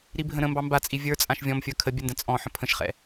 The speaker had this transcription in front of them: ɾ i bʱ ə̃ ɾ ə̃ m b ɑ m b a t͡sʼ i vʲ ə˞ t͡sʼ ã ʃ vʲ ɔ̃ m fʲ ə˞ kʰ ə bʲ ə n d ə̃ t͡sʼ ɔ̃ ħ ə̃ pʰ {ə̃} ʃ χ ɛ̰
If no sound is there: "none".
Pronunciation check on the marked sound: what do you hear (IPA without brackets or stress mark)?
ə̃